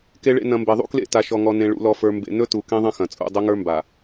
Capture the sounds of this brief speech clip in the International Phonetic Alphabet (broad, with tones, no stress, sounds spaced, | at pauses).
k e˨ ɭ ḛ˨ n ɐ̃˨ m b e˨ ðˤ ṵ˦ k l ḛ˦˨ t a˨ ʃ ɔ˨ ŋ ɔ˨ n ẽ˨ ɭ ṵ˨ l ɔ˨ f ə˞˨ m b ḛ˨ n ɵ˦ t u˨ k ẽ˦ ðˤ ɐ̃˦ x ɐ̃˨ t͡sʼ ṵ˦˨ dˤ ɵ˦ ŋ ə˞˦ m b a˨